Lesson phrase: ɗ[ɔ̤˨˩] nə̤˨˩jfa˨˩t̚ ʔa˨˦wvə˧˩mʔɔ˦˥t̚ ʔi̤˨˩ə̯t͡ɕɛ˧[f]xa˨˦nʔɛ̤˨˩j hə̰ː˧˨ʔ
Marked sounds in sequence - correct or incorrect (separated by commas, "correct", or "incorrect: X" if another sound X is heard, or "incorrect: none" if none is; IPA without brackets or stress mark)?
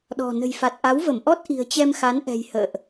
correct, incorrect: m